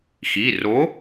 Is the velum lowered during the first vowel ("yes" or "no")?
no